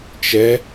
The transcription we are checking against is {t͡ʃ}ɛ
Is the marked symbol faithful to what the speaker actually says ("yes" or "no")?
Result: yes